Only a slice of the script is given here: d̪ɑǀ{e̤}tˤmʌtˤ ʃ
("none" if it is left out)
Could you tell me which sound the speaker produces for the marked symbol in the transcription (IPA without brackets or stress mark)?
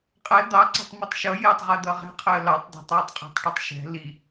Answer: ɛ̤